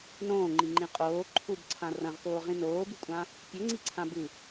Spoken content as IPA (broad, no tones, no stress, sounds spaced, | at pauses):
n õː ŋ͡ǃ i ŋ͡ǃ ĩ qʼ oː ǃʰ u b ǀʰ ã r ɐ̃ ʁ θ oː ʁ ĩ n oː b ɨ kʷʼ ã | pʲ ɵ ŋ͡ǀ i ǀʰ ã b ɨ